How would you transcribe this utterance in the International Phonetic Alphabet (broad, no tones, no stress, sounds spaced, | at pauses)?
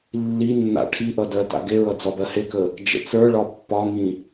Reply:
lː i nː a̰ ʈʰ i ʔ ʌ d ɜ t a̰ ɡ e ɹ ʌ d͡z ɒ b ɜ h e k ə | d͡ʒ ə̰ t͡s ə˞ ɭ ɒ pː ɒ ŋ ĩ